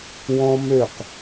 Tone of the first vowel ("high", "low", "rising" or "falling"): high